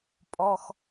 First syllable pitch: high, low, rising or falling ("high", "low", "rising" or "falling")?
high